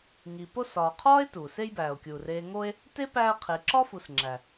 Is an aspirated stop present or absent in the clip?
present